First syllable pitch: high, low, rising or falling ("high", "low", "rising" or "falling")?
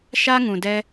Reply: high